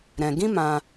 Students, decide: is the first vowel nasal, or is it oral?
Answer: nasal